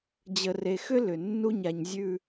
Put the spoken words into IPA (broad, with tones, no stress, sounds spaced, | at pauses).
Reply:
d͡ʑ ə˨ r e˨ x ʏ˦ l ʏ˨ nː u˦ ɲ a˨ ɲ zʲ ʉ˨